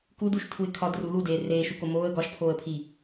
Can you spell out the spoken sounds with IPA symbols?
k u d u ʃ tʰ u ɪ̯ kʰ ɒ d r u l u d eː r eː ʃ u k o m oː ə̯ ɡ ɒ ʃ pʰ oː ə̯ pʰ i

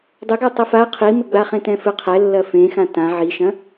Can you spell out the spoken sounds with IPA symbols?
dˤ ʏ ɡ a tˤ ɐ f a qʰ i m ɘ ɡ͡b a χ ẽ t ɛ̃ f ɘ qʰ ɛ lː ɐ f ẽ x ã t ã ʕ i ʃ ɐ̃

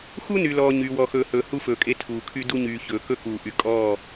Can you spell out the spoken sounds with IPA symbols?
x u˦ n y˨ l ɔː˨ ɲ yː˨ w ɔ˨ x ɵː˨ h ɵː˨ h u˦ f ɵː˨ kʼ e˦ tʰ uː˨ kʰ y˦ d u˦ ɲ yː˨ ç ɵː˨ k ɵ˦ k uː˨ ʔ y˨ kʼ ɔː˦˨

